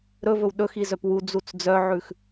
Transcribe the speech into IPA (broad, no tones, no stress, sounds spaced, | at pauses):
ɾ ɵ v ɵ w ɗ ɵ x i z œ p w u d͡z u t͡s d͡z œ ʕ ʉ x